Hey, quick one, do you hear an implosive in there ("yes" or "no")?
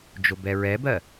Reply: no